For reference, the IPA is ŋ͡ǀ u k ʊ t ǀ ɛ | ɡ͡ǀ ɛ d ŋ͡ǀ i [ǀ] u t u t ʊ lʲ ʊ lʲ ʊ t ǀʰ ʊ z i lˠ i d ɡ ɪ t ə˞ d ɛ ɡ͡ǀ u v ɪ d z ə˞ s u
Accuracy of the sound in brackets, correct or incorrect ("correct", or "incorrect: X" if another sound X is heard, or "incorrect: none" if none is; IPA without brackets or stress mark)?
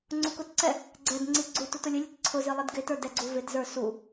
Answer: incorrect: ɡ͡ǀ